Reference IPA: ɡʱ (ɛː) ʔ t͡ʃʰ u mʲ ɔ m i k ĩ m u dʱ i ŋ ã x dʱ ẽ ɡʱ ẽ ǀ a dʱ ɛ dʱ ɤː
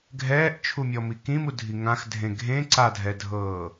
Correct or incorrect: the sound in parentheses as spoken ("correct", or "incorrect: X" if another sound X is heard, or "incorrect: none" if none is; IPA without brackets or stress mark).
correct